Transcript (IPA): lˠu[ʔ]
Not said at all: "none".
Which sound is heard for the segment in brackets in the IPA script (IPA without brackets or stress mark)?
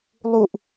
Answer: ʔ